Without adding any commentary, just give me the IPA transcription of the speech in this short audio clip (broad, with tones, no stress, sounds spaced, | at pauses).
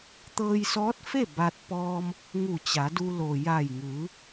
t̪ ɤː˧ j s ɔː˧˥ t̚ f e˥˨ b a˧ t̚ p ɔː˧ m | ŋ u˧˩ t͡ɕ a˩˧ d u˧ l o˩ j a˧˩ j ŋ ɯː˩˧